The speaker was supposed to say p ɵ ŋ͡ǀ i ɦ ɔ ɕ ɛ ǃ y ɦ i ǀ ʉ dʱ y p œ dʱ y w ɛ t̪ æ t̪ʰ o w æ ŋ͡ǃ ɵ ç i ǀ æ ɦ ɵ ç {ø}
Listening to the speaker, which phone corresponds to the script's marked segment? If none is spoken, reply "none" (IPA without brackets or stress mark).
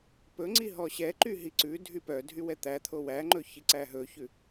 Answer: ʉ